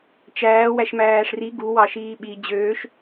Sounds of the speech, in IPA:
t͡ʃ æː w æ ʃ m æː ʂ r i ɡ u w ɑ ʃ iː ɓ i d͡ʑ øː ʃ

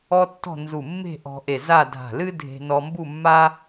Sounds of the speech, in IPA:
ɔ˥ tː ɔ̤˥˧ n z u˧˩ mː e̤˥˧ ʔ ɔ̤˧ ʔ e˧˩ z a˥˧ dʱ a̤˧˩ l ɨ˥ dʱ e̤˧ n ɔ˧ m b u˥˧ mː a˥

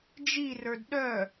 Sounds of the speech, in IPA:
d͡ʒ i r ə˞ d ɗ œ

